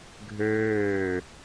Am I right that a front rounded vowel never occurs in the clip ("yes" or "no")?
no